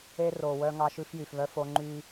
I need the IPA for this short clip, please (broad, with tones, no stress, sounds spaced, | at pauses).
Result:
e˦ r o˨ w œ˦ ŋ ɑ˦ ʃ ʉ˦ f j y˨ f β œ˦ f o˦ ŋ͡ǃ y˦